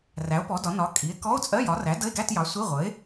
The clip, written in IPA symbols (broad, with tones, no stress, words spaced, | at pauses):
ræ˩˥o̯pɔ˩˥dɒ˩˥nɒ˩˥ kʼi˩˥e̯ kɔ˧˥˧o̯t͡sʼɜ˧˥˧jɒ˩˥ræ˩˥ də˧˥˧e̯ɡæ˧˥˧tjɑ˩˥ sʷi˧˥˧ʁʷə˩˥e̯